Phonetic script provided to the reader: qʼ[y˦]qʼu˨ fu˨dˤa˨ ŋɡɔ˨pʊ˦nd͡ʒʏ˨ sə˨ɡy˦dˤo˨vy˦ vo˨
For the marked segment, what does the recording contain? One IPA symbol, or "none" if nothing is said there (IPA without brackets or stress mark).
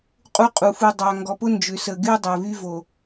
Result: u˦